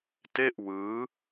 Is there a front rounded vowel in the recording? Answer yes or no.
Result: no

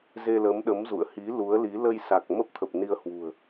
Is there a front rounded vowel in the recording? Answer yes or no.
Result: no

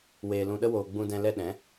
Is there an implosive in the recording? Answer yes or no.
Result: yes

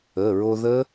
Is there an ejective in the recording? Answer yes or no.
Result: no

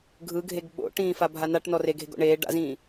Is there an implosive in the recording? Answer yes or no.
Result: yes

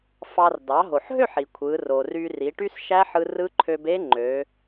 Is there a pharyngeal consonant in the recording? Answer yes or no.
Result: yes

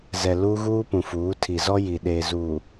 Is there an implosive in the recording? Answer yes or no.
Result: yes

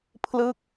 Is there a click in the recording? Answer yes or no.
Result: no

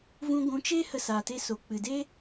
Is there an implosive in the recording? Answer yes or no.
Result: no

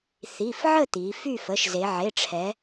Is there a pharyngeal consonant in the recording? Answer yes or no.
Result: yes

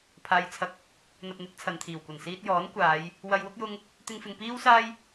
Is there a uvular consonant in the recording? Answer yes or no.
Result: no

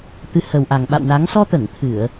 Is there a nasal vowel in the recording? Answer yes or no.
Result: no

